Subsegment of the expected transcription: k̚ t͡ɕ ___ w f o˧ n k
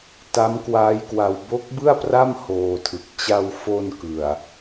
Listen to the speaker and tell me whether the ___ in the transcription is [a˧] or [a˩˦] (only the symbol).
a˧